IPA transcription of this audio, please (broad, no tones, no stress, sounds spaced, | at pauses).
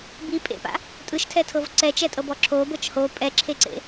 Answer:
b i pʼ ḛ p a̰ | tʼ ɯ ʃ tʰ ɛ tʰ ɤ v ǀ ɛ t͡ʃ ɛ tʼ ɤ b ɔ ǁʰ o b ɤ t͡ʃ h o pʼ ɛ ǁʰ e ǀ ḛ